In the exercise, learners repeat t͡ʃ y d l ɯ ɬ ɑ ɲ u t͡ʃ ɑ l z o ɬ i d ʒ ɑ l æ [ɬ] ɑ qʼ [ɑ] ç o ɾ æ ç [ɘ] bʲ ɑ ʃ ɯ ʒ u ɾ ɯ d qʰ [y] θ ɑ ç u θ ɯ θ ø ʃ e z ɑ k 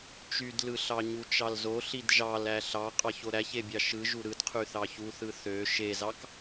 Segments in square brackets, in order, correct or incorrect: correct, correct, incorrect: e, correct

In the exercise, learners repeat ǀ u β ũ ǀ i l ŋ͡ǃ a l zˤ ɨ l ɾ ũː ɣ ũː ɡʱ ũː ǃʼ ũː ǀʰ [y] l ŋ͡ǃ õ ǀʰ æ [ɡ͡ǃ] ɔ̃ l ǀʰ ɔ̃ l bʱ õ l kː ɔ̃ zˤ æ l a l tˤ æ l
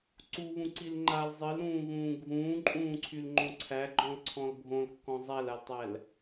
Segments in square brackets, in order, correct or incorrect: correct, correct

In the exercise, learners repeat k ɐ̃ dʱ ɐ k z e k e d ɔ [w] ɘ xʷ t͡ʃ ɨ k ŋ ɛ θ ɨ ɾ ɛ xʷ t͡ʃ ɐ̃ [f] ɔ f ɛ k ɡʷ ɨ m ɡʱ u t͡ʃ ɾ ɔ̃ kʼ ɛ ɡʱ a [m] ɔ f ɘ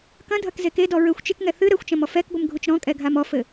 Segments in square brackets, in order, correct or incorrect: incorrect: ɹ, incorrect: m, correct

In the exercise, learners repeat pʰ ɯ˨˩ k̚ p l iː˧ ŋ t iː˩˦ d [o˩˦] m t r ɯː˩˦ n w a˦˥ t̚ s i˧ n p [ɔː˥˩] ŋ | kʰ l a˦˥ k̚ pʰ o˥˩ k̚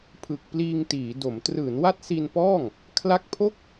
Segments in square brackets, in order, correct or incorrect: correct, correct

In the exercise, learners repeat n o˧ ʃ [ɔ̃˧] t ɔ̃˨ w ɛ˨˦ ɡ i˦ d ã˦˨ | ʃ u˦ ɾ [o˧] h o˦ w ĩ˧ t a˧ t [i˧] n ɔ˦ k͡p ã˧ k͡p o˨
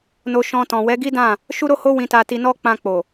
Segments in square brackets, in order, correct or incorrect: correct, incorrect: o˦, correct

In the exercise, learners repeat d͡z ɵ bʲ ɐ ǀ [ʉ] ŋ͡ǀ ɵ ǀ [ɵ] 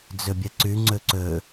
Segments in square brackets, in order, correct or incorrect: correct, correct

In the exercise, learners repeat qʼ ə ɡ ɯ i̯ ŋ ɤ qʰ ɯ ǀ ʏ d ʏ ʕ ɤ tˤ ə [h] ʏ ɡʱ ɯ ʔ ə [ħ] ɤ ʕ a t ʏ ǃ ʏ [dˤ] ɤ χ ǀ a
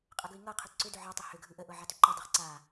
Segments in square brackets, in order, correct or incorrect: correct, incorrect: ʔ, correct

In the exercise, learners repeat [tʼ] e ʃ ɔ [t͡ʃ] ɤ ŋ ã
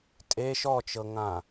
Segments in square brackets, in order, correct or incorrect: correct, correct

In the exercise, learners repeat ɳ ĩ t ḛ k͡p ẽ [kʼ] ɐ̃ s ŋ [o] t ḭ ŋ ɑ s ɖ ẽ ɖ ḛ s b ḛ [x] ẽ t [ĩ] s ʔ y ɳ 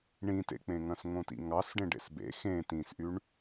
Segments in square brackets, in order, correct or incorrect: incorrect: ŋ, incorrect: õ, correct, correct

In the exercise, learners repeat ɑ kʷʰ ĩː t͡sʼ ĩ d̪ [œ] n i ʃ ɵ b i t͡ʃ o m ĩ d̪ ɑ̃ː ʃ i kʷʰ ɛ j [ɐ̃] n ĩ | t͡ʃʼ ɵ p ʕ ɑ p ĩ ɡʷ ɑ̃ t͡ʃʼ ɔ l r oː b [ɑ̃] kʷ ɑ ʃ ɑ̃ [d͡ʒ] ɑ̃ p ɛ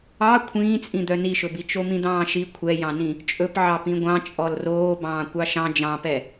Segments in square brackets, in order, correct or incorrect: correct, incorrect: ɑ̃, incorrect: ɑ̃ː, correct

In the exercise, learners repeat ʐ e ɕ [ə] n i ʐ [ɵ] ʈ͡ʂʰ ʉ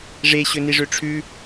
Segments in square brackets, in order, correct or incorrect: incorrect: ɵ, incorrect: ø

